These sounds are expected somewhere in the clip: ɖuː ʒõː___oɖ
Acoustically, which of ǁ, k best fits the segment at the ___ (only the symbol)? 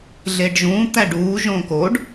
k